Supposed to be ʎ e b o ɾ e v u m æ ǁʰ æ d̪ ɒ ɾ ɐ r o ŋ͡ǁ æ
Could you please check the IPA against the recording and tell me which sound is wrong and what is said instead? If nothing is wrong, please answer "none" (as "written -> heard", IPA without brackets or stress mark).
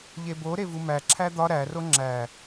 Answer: ɐ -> æ